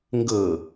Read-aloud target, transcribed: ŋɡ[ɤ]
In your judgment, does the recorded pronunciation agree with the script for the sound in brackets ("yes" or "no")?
yes